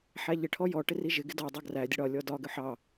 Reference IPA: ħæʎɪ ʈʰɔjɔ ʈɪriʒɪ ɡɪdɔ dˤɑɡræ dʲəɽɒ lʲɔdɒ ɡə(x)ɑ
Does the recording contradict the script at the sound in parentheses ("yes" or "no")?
yes